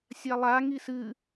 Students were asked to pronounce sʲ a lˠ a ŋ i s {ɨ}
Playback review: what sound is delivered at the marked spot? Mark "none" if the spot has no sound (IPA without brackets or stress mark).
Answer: ɨ